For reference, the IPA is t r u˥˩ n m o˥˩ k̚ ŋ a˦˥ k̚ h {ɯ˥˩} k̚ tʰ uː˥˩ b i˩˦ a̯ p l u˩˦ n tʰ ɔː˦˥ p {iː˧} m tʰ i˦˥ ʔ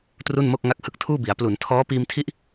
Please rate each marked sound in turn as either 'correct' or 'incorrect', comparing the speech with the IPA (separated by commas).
incorrect, correct